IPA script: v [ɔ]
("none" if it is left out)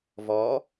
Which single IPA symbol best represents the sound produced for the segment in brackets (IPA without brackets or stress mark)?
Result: ɔ